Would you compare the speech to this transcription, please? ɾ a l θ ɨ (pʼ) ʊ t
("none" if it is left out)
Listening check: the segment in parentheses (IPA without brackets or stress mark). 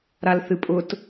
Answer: pʼ